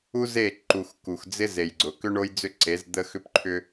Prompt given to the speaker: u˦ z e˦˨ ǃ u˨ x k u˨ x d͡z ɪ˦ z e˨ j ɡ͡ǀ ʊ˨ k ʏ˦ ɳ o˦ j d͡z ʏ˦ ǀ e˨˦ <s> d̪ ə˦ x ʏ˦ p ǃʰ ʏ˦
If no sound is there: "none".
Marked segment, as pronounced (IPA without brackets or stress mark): z